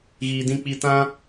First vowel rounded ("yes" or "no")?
no